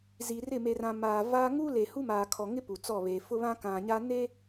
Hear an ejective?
no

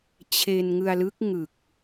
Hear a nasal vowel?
no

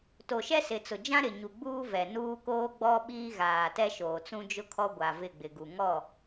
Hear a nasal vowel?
yes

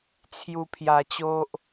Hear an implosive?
no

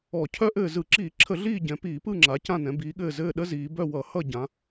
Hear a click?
yes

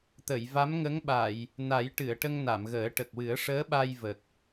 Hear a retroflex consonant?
yes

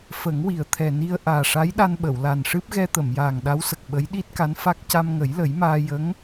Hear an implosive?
yes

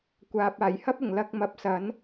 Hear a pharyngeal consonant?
no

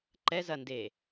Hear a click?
yes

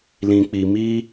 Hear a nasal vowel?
yes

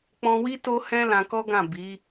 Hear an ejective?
no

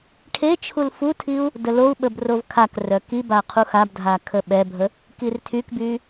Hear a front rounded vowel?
yes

